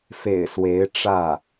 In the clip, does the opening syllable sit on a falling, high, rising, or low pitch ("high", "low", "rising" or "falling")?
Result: low